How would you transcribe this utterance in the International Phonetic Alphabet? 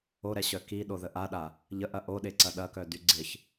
o ɾ ɛ ɕ œ k i ɗ o ð ə ʔ a ɗ a | ʎ ə ʔ ɐ ʔ o ɗ e ǀ ɐ ɗ ɐ k œ d y ɡ͡ǀ ɪ ç

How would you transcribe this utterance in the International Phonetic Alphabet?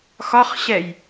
x ɒ χ ɕ ɛ j

